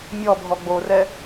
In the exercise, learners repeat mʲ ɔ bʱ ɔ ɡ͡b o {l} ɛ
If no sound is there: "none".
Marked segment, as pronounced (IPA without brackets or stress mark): r